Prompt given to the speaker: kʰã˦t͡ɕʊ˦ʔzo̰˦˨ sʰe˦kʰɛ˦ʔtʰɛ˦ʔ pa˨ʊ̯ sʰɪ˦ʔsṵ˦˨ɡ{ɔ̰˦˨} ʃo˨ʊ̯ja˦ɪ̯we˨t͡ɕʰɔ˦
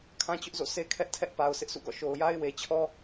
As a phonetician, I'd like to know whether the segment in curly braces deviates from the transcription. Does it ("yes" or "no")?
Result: no